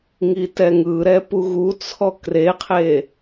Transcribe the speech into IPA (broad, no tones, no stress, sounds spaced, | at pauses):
ŋ i t ɛ ŋ ɯ ɾ ɛ p u ɣ u t͡sʰ ɔ k r e qʰ e